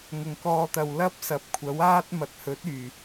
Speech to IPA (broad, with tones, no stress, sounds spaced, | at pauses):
ŋ ʊ˨˩ ŋ k ɔː˧ t̪ ɐ˨ w l ɐ˥ p̚ s ɐ˨˥ p̚ kʷʰ ɐ˨˥ w aː˥ t̚ m ɐ˨ t̚ h ɵ˨˥ t̚ yː˨˩